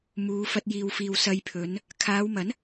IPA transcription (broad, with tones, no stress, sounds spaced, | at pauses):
m uː˨˧ f ɐ˧ t̚ j iː˨ w f iː˨ w s ɐ˧ j pʰ ɵ˨˧ n | kʰ aː˨˧ w m ɐ˨˥ n